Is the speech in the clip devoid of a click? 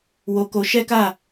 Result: yes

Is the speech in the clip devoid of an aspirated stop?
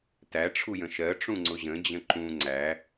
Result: no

